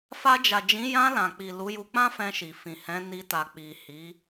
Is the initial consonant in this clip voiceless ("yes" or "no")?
yes